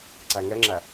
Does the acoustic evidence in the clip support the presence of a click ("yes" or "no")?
yes